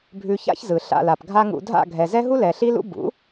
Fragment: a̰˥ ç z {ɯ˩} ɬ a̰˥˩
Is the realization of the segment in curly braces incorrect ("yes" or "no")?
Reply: no